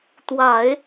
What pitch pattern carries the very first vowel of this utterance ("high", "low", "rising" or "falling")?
low